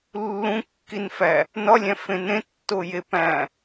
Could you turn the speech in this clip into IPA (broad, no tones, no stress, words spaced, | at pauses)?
lːũkːinfæ | nɒlʲæ̃fẽ nẽtːoje pæ̃